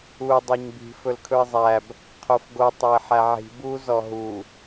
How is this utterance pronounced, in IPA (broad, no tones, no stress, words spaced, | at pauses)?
u dˤøɲbi̤ fɵlkʰɵɪ̯zˤæb | qʰofɡo tˤøɪ̯ħæʕi̤ bu zɔɦu